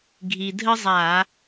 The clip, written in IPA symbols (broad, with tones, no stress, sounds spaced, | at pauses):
ɡʱ i˧ dʱ ə˥ zˤ a˧˩˧